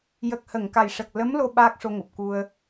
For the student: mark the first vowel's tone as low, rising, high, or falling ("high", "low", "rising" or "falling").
low